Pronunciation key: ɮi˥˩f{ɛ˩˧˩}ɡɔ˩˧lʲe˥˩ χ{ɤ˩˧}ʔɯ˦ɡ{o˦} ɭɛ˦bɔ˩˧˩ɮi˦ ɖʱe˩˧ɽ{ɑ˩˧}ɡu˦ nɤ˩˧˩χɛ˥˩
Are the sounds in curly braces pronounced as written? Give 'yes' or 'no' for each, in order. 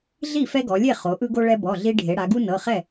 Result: no, no, yes, no

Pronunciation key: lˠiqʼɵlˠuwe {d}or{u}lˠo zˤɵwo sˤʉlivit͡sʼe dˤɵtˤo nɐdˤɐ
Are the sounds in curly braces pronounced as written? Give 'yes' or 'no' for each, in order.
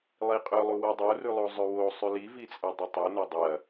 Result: no, no

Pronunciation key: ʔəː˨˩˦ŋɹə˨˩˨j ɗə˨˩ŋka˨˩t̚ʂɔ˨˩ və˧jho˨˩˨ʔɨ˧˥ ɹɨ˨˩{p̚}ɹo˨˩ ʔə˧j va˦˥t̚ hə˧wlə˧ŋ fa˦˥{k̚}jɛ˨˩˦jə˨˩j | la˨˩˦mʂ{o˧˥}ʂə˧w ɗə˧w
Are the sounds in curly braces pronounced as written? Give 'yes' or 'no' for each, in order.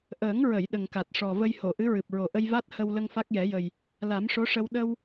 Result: yes, yes, yes

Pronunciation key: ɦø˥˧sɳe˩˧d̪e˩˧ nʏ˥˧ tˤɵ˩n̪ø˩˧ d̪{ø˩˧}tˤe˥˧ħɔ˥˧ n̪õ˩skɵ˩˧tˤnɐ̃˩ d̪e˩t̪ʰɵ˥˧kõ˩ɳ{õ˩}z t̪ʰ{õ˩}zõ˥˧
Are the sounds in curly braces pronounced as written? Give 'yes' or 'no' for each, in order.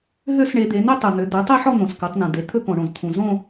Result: yes, yes, no

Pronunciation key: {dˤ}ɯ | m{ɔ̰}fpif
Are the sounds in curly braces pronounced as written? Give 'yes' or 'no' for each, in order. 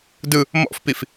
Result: no, yes

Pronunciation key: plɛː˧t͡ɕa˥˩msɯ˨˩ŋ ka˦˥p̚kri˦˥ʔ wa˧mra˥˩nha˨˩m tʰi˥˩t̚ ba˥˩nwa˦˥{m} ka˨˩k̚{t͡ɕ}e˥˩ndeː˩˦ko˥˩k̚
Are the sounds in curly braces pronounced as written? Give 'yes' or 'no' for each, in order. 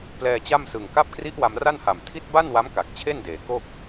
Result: yes, no

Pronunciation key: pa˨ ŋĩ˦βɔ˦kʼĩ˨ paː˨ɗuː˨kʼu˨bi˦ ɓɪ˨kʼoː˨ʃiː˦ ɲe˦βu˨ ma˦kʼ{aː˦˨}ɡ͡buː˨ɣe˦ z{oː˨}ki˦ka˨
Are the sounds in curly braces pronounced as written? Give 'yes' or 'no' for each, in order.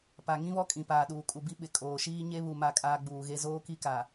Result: no, no

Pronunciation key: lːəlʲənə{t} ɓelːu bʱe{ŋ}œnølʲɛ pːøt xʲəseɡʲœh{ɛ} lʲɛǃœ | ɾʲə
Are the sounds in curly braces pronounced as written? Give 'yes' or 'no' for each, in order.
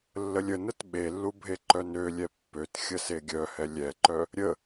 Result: yes, no, yes

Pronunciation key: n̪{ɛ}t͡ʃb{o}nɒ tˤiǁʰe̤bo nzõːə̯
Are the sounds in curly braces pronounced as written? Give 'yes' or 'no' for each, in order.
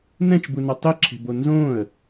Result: no, no

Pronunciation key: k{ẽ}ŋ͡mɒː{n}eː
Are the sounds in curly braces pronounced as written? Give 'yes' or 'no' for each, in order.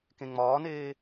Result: yes, yes

